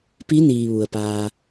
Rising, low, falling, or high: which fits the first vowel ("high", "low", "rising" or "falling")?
rising